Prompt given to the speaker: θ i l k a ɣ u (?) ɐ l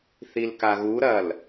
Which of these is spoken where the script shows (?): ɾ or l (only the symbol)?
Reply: ɾ